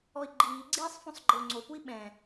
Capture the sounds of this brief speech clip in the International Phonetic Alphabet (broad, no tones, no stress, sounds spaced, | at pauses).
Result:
ɔ i̯ ɡ͡ǃ iː ɡ͡ǀ iː sˤ f õ sˤ ɡ͡ǃ ɪ u̯ ŋ͡ǀ o p u i̯ ɓ ɛ̃